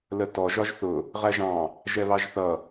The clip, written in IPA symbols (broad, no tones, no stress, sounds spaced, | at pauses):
l ə t ɔ ʒ ɒ ʒ θ ʊ | ʁ æ ʒ ɑ̃ | ʒ ɛ β ɑ ʒ θ ʌ